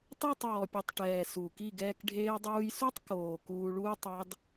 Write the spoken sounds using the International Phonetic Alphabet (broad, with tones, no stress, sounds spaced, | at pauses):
t ɑ˦˨ tˤ ɔː˨ pʲ u˨ tˤ ʈ ɛː˨ s uː˨ k i˦˨ ɡ ɛː˧ k ɖʱ eː˧ dˤ uː˧ j s u˦ tˤ k oː˨ k uː˧ ɭ uː˦ tˤ ɑ˦ d